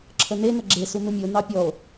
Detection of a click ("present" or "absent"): present